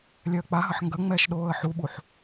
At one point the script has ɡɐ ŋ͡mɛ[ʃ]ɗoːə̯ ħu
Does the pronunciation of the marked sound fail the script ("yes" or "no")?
no